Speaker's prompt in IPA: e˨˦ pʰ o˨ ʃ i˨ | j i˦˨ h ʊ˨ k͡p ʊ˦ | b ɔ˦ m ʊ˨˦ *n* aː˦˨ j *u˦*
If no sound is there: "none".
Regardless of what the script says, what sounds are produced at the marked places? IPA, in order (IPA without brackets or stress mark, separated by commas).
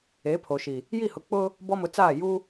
t͡s, u˦